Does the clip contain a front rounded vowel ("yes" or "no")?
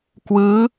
no